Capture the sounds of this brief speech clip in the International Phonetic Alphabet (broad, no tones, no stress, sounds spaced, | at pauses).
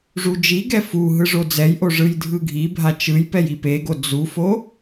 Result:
ʐ u d͡ʒ i ɡ ɛ f u ɦ ɯ ʐ o d͡z ɛ j ʔ o ʐ ɯ j dʱ ɯ ɡʱ i bʱ a t͡ʃ ɯ j p ɛ j i p e ɡ o d͡z u f o